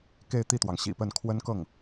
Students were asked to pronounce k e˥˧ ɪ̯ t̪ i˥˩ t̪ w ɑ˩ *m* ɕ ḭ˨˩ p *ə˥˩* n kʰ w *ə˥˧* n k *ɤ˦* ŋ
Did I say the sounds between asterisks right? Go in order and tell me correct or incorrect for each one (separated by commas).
incorrect, correct, incorrect, incorrect